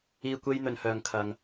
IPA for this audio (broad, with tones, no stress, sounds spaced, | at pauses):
iː˨ kʷ e˧ j n̪ ɵ˨ n h œː˨ ŋ kʰ ɐ˨ ŋ